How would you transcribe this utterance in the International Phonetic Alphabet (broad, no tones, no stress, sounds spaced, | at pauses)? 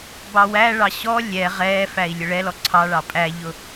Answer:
b ɑ w æ ɭ ɑ ɕ ɔ lʲ ɛ ʁ ɛ f æ i̯ lʲ ʊ ɭ ɛ l ɔ ǀʰ ɑ ɭ ɑ pʼ æ ʎ ʊ